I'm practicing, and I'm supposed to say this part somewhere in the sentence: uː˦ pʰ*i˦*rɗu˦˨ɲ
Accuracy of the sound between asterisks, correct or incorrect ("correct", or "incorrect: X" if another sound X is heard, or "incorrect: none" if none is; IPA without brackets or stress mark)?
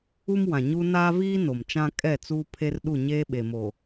incorrect: e˦